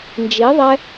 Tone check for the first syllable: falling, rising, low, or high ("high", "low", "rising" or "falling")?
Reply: rising